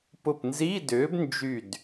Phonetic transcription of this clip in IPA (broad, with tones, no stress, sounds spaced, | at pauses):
p ʊ˧˩ p n z i˧˥˧ d ʏː˨˥ b n d͡ʒ y˧˩ d